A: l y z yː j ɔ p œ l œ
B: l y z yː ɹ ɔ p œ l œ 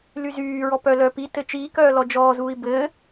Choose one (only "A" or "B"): B